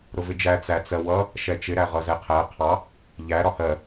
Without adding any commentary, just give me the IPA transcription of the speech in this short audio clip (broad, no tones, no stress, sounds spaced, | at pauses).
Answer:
ɾ ʊ v ɪ d͡ʒ æ t͡s æ t͡s ɜ w ʌ | ʃ ɛ t͡ʃ ɪ ɾ æ ʁ ʌ z ɛ qʰ æ qʰ ɑ | ʎ æ ɾ ɒ h ɜ